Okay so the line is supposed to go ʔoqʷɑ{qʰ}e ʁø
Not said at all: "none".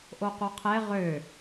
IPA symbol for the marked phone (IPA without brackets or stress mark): qʰ